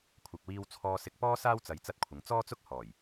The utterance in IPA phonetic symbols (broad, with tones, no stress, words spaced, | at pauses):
kʷʰɐ˨k̚wiː˧w t͡sʰɔː˧sɪ˧k̚pɔː˥saː˥w t͡sɐ˧jt͡sɐ˥t̚kʷʰɪ˨˧ŋ t͡sɔː˥t͡sʊ˥k̚ hɔː˨˩j